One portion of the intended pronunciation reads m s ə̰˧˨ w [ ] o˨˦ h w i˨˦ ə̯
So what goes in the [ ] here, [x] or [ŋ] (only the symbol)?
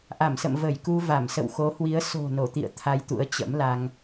x